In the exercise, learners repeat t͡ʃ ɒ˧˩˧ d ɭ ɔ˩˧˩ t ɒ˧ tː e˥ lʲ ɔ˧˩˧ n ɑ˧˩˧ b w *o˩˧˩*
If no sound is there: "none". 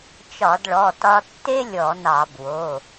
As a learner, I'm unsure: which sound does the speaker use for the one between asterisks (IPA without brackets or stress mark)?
o˩˧˩